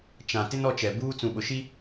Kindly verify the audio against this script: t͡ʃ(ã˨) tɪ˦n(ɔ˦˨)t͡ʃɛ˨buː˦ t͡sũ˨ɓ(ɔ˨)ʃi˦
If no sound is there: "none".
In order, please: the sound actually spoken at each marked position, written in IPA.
ã˨, ɔ˦˨, ʊ˨

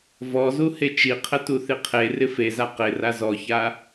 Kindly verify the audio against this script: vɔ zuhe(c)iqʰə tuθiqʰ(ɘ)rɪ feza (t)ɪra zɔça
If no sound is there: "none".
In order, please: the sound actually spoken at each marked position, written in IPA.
t͡ʃ, e, q

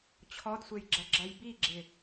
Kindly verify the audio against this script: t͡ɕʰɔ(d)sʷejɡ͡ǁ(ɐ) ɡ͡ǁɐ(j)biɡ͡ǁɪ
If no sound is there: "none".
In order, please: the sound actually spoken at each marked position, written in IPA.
d, ɐ, j

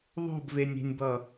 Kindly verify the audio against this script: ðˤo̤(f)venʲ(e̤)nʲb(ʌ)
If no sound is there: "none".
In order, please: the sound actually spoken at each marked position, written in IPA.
b, e̤, ʌ

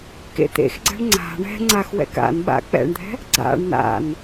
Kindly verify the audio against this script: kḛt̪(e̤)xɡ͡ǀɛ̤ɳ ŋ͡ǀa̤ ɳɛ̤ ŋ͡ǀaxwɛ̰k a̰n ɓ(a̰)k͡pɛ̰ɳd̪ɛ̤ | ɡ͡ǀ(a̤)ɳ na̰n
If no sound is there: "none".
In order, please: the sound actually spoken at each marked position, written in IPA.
ḛ, a̰, a̰

